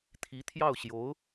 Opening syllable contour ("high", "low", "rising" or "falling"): rising